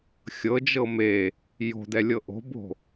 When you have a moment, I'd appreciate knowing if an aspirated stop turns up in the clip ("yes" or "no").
no